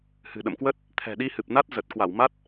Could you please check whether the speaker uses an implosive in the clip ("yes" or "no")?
yes